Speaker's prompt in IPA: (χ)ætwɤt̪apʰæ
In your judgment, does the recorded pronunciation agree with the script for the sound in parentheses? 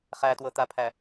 yes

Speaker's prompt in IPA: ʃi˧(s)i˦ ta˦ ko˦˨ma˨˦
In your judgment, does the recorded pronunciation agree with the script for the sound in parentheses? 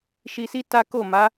yes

